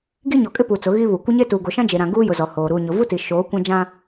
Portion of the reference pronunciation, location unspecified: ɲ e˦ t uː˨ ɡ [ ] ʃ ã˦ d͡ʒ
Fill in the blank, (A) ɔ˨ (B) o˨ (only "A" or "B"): B